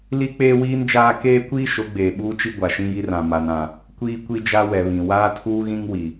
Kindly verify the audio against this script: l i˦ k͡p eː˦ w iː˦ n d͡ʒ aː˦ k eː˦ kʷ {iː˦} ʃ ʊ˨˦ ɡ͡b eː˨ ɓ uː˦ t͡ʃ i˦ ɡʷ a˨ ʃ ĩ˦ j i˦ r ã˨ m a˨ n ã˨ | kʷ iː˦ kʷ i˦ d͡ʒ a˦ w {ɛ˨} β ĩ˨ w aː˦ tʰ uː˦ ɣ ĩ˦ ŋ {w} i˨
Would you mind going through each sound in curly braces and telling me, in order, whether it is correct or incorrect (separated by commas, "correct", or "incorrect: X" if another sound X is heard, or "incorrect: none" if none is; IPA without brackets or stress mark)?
correct, correct, correct